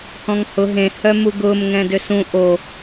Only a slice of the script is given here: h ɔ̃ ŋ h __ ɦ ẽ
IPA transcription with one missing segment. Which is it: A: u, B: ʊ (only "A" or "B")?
B